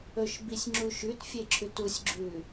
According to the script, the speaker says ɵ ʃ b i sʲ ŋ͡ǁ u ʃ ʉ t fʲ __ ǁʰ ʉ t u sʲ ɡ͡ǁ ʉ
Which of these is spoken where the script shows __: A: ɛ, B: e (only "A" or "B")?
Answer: B